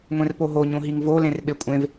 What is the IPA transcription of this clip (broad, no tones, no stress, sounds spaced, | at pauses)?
ŋʷ ẽ r p o ɦ o ɲ õ ɦ i ŋ v o l ẽ r ɓ e kʷʼ ẽ v